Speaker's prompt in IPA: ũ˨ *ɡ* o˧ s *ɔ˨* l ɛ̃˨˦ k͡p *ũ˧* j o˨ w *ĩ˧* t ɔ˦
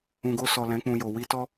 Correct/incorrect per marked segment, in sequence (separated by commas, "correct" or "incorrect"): correct, correct, correct, incorrect